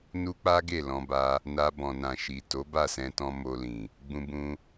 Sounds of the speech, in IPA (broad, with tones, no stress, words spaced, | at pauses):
nu˦k͡pa˦ɡe˦˨ lɔ̃˧ba˧ | na˧bɔ̃˨nã˨ ʃi˨ to˨˦ba˦˨sɛ̃˧tɔ̃˧ mo˧lĩ˨ | ɡ͡bũ˧bũ˧